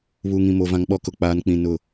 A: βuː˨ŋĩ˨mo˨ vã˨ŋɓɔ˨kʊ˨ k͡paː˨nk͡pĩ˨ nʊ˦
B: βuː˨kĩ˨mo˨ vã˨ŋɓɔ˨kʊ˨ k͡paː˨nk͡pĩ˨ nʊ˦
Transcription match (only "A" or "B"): A